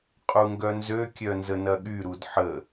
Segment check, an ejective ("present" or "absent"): present